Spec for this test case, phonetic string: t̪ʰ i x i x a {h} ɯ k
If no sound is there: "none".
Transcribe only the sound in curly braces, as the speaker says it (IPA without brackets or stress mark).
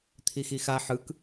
ħ